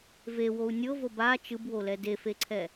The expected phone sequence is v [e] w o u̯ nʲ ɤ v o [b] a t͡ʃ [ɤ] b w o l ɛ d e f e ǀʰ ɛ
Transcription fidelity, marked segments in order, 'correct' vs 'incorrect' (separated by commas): correct, correct, incorrect